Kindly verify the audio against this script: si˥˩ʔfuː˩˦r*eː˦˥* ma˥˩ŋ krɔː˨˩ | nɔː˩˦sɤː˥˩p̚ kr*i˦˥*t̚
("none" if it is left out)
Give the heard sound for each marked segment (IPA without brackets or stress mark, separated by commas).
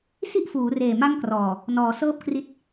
eː˨˩, i˦˥